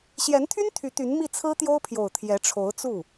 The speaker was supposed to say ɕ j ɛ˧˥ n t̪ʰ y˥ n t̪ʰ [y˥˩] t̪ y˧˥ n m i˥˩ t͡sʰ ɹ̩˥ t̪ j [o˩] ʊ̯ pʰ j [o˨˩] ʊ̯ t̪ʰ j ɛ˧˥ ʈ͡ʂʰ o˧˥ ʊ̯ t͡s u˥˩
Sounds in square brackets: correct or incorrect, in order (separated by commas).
incorrect, incorrect, correct